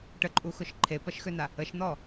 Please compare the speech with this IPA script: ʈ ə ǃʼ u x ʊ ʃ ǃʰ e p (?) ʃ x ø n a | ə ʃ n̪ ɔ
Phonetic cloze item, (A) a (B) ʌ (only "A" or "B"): B